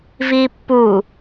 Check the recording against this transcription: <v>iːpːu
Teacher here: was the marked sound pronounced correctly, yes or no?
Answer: yes